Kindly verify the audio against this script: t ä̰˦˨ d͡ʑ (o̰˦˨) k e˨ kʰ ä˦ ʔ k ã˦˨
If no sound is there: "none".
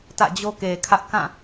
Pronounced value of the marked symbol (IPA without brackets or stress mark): o˦